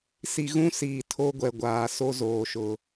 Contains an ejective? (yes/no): no